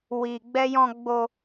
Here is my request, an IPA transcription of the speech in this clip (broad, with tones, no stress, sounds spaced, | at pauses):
w i˧ ɡ͡b ɛ˦ j ɔ̃˧ ɡ͡b o˧